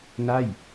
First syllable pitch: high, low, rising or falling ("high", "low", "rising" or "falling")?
falling